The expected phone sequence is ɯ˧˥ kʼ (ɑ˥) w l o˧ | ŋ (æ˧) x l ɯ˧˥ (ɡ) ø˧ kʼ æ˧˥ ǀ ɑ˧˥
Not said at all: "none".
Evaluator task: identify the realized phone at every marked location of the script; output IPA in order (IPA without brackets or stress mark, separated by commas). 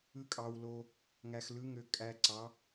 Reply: ɑ˧, æ˧, ŋ